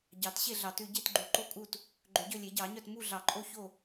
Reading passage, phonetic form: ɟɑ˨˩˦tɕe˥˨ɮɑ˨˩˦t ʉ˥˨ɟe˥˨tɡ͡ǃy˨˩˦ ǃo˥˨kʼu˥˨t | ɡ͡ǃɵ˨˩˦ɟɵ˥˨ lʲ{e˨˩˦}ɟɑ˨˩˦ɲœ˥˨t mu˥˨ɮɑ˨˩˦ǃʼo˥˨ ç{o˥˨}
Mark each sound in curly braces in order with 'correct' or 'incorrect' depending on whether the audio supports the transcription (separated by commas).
correct, correct